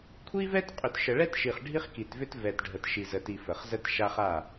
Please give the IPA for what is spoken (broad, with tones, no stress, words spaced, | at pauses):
kʷʰi˦vɛ˦tqʼʏ˨t ʃə˨ɭɛ˦tʃi˨χ ɖʱi˦χki˨tvʏ˦t vɛ˨tɖʱə˨t ʃi˨zə˨ti˨ fə˨χzə˦t ʃa˦χa˦˨